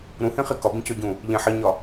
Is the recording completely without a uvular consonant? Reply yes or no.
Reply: no